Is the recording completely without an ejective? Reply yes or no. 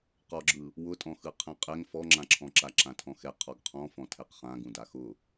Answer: no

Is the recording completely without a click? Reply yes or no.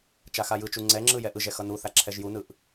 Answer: no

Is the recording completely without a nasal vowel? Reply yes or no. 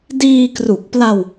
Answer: yes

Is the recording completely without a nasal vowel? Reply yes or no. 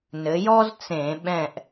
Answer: no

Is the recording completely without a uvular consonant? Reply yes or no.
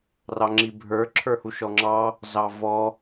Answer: yes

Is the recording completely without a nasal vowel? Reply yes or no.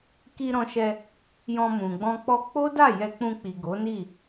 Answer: no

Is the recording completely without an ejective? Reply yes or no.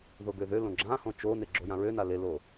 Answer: yes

